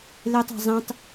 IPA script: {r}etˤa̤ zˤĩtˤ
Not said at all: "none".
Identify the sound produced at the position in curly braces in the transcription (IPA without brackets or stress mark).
l